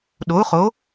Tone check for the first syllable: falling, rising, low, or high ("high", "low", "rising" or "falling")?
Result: rising